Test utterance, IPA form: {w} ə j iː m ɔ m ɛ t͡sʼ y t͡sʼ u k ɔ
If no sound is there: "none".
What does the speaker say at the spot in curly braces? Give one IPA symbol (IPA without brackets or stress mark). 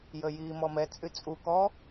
j